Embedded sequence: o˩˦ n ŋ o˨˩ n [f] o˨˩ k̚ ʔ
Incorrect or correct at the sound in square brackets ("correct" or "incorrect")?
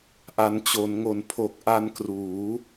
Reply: incorrect